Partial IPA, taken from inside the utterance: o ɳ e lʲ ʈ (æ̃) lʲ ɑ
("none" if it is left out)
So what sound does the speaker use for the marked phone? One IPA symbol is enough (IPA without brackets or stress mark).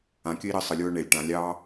ã